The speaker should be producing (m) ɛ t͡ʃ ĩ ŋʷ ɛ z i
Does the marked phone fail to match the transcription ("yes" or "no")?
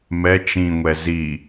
no